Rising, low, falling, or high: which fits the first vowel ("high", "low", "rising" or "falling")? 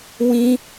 high